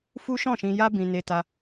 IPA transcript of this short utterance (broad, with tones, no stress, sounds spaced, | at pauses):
f u˦ ʃ ɔ̃˦˨ ʃ ĩ˧ j a˦ b ĩ˧ n e˧ t a˧